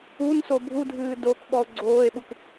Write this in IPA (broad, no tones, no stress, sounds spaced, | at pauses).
u n s o bʱ u dʱ ɨː d o k ɓ ɔ o̯ ɡ͡ǀ oː e̯ ɓ u k